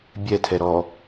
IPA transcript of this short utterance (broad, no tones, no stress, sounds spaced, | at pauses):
bʲ ɛ tʰ ɛ ɾ ɔ